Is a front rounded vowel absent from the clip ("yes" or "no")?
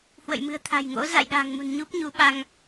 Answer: yes